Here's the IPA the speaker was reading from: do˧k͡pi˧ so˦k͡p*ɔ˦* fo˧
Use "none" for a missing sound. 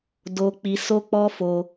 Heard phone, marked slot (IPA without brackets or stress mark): ɔ˦